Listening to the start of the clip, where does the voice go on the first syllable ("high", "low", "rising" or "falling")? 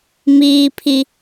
high